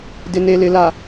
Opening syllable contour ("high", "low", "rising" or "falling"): low